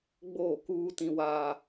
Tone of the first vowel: falling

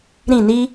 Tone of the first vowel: falling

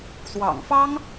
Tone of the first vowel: low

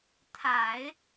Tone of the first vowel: low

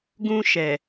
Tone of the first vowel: high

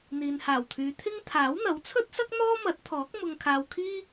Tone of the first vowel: low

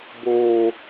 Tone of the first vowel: low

